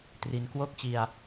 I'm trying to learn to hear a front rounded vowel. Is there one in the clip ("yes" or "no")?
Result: no